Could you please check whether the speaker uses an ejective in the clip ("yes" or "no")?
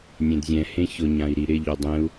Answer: no